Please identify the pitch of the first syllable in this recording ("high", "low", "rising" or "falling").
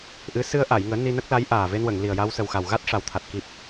rising